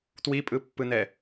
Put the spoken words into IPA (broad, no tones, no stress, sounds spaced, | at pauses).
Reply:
t w i pʼ ɯ pː ɯ n ɛ